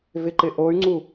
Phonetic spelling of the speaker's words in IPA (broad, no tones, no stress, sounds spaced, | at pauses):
v ɪ ǃ ɪ ʔ o y̯ ŋ͡ǀ u